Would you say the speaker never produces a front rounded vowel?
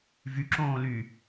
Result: no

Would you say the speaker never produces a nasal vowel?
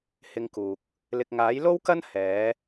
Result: yes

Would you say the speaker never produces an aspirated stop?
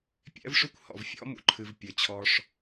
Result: no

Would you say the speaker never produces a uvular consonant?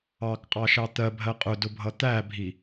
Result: no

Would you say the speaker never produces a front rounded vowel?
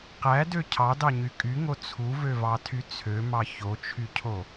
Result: no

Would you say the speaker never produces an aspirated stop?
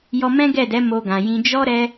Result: yes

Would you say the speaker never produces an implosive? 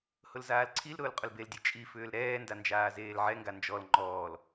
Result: yes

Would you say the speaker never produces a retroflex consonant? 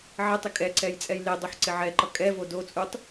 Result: yes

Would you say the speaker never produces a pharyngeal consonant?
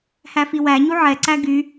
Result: no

